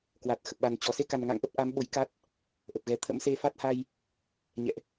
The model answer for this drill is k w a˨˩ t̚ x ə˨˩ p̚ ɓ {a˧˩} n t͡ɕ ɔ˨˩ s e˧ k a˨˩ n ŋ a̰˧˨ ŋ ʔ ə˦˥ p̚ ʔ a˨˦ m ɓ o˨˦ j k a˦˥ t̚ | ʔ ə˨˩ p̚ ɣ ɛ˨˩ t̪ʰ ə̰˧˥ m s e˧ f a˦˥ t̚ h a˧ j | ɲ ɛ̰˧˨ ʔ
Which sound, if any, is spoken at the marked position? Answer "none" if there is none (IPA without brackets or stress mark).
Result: a˨˩